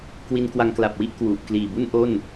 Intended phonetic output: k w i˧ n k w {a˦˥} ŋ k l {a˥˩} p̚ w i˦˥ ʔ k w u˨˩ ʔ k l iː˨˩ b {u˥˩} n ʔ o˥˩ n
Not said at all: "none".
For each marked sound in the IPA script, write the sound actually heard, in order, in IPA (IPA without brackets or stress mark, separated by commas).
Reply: a˧, a˨˩, u˥˩